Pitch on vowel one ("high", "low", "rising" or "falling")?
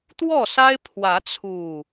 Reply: falling